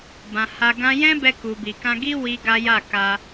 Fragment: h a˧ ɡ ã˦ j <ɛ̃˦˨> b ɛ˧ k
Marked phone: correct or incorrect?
incorrect